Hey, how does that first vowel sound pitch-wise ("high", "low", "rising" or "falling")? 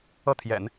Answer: falling